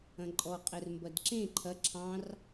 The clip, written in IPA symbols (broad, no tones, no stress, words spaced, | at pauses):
ɐ̃ǃʼɔ qʼɛrmbɐdǁẽ ǃʰɐ ǁʰɑ̃r